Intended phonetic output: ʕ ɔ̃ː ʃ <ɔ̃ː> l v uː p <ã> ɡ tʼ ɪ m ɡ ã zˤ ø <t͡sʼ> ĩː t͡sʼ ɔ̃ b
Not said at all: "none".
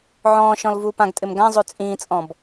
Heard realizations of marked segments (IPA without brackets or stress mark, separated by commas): ɔ̃, ã, t͡sʼ